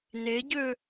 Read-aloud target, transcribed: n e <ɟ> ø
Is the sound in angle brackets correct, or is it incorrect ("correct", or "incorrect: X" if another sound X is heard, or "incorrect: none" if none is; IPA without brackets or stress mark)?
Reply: correct